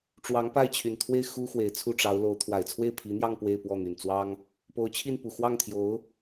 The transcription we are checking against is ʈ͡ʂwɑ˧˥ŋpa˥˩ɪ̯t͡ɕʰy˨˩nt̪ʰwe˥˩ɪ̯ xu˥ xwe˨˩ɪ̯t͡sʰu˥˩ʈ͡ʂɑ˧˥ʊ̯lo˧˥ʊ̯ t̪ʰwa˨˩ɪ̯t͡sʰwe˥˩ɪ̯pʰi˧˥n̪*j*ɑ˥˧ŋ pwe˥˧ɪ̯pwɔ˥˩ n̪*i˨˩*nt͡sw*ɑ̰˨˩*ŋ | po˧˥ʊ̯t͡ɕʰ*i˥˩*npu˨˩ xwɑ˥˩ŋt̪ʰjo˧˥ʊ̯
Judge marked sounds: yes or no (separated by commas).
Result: yes, no, no, yes